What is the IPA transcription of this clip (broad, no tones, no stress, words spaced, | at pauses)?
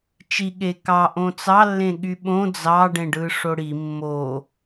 t͡ʃi ɠe kɑʔõ t͡sɑlːẽɠy ɓõ d͡zɑɖẽɖɯʂo ɽi mːo